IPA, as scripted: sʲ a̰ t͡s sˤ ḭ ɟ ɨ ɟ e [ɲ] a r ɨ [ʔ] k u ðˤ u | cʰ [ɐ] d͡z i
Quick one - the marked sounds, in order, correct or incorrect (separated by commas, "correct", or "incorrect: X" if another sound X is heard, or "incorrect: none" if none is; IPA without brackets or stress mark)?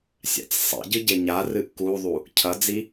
correct, correct, correct